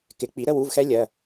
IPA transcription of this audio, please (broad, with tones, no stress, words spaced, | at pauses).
kɪ˩˧k͡pi˩˧ ɾə˧˥˧wu˧˥˧vxɛ˦˥ lʲɜ˩˧˩